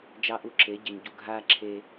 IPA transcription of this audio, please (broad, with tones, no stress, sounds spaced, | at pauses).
d͡ʒ ɑ˦ ʔ u˦ ǁ e˨˦ ɟ ɪ˨ ɲ ɟ u˨ ɡʱ aː˦ ǁʰ e˧